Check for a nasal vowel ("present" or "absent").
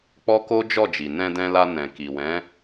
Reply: present